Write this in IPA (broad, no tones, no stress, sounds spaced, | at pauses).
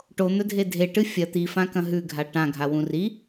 ʈ o n̪ ɵ dʱ e dʱ e ʈ ɨ fʲ ɐ t̪ i f ã k ɐ̃ ɦ ʉ ɡʱ a ʈ ã ɡʱ a w ũ r i